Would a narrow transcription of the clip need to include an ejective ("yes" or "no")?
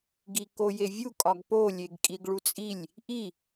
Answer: yes